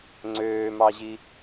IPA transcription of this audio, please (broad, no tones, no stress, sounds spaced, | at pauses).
ŋ͡ǀ øː m ɑ ʑ i